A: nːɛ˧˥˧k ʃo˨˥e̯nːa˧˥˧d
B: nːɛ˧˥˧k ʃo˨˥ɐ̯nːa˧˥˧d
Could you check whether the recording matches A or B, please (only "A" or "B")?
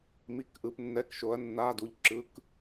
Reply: B